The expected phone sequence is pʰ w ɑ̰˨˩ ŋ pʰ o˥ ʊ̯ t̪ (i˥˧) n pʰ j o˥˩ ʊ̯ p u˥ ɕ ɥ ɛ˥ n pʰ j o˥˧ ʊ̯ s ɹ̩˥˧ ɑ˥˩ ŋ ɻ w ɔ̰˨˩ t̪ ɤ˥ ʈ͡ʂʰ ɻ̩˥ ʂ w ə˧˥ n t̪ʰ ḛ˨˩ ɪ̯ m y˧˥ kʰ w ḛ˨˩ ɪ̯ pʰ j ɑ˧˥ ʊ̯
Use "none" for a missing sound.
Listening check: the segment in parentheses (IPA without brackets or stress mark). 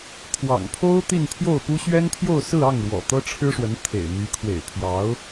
i˥˧